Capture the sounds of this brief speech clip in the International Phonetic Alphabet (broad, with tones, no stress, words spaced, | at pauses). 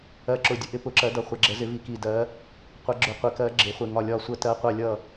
ɜ˧˩ǁʊ˧˩dʲʊ˨˦ ʔɪ˨˦pʊ˧˩ǁɜ˨˦dʌ˧˩ χʷɛ˨˦ɡ͡ǁə˨˦zɪ˨˦ vi˧˩ki˧˩ dɜ˨˦ | qʷɜ˨˦ɡ͡ǁʊ˧˩qʷɪ˨˦kɜ˨˦ ɡ͡ǁɪ˨˦ χʷɪ˧˩ ŋɒ˧˩lʲɒ˧˩sʷə˧˩ tɜ˨˦qʷʌ˧˩lʲʌ˧˩